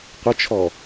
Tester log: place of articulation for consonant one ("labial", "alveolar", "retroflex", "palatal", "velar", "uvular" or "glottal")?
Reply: uvular